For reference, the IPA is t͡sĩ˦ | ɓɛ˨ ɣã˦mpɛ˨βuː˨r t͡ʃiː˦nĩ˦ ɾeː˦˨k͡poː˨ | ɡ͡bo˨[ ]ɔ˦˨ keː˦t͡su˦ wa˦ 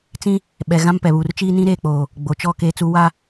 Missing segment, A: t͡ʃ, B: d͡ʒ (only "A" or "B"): A